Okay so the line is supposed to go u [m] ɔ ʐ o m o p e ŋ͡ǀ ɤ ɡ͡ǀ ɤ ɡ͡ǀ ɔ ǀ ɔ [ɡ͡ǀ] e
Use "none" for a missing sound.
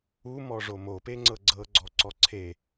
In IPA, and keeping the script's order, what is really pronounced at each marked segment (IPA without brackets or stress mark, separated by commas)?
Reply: m, ǀʰ